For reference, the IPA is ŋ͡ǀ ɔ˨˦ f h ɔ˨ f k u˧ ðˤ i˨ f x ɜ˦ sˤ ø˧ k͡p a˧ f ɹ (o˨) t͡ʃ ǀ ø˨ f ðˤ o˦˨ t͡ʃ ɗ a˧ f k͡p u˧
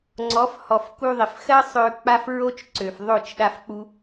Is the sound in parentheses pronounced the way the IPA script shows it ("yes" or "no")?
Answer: no